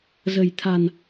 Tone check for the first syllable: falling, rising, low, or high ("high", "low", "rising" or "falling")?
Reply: low